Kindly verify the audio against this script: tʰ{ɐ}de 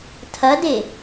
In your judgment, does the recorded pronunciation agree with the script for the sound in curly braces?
yes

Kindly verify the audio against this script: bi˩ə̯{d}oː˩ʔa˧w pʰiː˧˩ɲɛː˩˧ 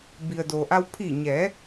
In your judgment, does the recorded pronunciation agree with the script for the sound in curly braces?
yes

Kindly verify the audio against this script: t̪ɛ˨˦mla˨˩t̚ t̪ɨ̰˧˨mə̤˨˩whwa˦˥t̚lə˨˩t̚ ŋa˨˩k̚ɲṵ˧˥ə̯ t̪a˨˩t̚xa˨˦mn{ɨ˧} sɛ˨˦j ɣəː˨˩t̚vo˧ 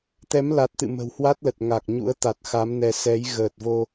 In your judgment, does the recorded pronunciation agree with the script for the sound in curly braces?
no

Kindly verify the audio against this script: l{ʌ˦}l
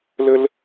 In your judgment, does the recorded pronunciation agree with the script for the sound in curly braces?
no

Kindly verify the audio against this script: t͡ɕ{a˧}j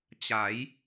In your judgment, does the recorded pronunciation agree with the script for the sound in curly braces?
no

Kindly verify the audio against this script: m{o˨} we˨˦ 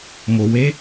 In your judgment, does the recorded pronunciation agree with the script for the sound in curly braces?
yes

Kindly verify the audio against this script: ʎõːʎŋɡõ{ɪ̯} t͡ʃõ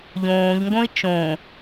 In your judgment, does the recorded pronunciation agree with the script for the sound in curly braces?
yes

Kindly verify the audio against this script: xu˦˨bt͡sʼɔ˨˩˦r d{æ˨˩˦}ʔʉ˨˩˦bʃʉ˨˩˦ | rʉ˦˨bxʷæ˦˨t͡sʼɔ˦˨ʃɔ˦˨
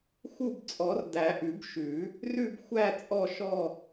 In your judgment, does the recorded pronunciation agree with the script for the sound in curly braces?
yes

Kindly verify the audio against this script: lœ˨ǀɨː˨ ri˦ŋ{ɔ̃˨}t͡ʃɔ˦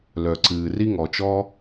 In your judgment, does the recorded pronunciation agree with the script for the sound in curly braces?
no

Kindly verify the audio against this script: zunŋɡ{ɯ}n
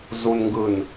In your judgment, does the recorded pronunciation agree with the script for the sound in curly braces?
yes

